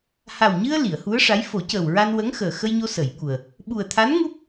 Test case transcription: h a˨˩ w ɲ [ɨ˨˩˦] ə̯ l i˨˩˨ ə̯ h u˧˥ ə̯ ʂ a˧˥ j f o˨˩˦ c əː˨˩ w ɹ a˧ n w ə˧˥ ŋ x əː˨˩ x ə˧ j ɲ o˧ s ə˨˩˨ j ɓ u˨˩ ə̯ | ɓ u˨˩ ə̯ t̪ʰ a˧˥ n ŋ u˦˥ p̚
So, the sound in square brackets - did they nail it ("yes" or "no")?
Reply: no